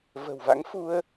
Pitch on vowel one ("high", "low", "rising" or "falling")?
low